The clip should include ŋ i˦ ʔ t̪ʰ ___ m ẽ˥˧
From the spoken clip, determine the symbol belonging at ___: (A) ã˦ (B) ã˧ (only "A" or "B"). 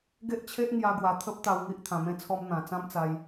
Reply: B